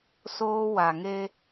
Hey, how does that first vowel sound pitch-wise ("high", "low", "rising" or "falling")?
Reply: high